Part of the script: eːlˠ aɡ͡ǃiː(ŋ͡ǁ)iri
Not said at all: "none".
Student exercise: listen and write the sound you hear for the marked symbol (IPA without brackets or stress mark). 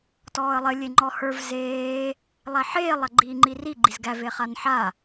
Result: ŋ͡ǃ